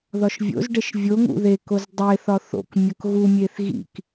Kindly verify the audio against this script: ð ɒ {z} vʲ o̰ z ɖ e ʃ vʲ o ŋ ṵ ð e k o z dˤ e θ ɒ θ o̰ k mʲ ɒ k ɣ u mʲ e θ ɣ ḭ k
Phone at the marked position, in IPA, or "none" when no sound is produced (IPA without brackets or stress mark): ʃ